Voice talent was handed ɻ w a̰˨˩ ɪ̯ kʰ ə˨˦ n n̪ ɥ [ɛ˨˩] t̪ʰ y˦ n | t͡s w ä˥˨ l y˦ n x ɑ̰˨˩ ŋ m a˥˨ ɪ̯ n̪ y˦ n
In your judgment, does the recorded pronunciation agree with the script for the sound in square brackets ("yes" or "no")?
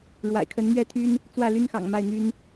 no